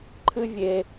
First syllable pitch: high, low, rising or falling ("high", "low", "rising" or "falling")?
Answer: high